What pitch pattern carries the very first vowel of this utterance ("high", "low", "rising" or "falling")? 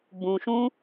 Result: low